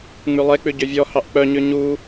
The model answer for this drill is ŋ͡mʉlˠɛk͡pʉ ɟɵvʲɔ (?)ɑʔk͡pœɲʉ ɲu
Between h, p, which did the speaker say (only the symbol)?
h